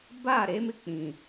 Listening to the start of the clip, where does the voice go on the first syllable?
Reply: falling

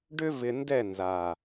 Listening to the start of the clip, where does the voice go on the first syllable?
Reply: high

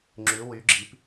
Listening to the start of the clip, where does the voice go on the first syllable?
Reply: rising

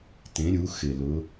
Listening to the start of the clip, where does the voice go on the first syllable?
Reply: rising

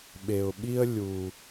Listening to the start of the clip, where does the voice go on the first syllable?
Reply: low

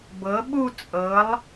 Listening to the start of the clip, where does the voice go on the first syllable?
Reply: rising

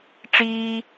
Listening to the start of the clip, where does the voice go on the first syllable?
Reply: high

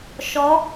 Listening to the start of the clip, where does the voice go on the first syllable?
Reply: rising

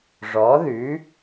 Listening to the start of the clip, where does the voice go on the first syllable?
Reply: rising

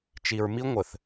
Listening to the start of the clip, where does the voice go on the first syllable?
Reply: low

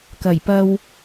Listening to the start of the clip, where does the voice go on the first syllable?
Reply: low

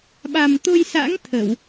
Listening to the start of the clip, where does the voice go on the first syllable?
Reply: low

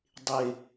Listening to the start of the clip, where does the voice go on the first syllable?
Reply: falling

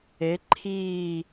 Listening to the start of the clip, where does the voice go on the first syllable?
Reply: rising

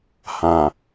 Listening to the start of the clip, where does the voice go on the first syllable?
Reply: low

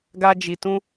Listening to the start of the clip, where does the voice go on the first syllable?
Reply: high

